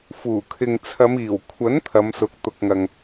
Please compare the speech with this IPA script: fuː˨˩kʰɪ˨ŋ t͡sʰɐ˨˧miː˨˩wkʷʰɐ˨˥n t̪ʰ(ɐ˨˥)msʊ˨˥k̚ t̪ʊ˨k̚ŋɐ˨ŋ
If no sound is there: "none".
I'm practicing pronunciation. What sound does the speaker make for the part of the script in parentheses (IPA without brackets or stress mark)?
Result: ɐ˨˧